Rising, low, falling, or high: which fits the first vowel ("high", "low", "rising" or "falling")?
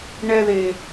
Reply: high